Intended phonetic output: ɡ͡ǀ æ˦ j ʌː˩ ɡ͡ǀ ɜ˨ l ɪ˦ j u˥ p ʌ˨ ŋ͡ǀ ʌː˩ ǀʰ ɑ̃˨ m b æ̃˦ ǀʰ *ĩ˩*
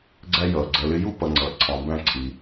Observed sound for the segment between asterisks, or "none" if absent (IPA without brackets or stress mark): i˩